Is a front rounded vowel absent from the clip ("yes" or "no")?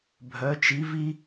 no